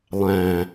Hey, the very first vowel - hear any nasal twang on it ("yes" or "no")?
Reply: yes